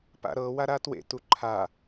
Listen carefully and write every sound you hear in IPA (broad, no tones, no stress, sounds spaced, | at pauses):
p a̰ ɾ ɤ w a ɾ a t w ḛ t u ǃʰ a